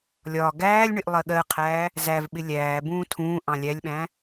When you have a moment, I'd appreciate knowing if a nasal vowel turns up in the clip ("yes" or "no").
yes